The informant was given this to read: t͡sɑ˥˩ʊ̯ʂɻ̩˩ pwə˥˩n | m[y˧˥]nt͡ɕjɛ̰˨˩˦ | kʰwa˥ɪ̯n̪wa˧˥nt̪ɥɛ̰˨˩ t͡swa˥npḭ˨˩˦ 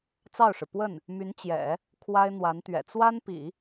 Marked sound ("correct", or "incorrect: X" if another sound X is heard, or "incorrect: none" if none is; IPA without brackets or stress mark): correct